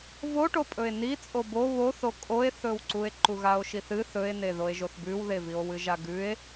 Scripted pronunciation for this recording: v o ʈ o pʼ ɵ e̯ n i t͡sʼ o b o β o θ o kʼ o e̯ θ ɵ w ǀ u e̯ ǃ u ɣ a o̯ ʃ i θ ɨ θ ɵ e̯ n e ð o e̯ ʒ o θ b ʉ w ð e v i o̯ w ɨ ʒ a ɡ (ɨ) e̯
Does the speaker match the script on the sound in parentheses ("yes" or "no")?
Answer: no